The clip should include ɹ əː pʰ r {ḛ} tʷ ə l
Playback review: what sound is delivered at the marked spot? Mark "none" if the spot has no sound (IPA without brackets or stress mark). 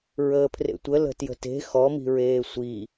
ḛ